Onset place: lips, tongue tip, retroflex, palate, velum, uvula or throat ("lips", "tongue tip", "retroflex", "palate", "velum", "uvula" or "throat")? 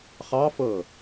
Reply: uvula